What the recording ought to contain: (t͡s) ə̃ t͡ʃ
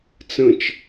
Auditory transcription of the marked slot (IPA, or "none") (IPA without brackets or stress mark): t͡s